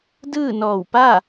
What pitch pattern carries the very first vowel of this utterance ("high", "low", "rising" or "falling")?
falling